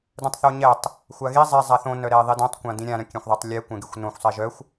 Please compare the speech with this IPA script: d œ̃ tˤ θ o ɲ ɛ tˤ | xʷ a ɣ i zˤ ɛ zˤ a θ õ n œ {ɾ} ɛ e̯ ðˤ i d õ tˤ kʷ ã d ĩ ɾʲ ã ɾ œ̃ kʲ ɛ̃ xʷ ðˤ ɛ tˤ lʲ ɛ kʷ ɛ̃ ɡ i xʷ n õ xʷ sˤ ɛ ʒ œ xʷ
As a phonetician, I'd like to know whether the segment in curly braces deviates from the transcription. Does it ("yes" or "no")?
no